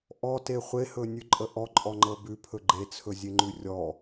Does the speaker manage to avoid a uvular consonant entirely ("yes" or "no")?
no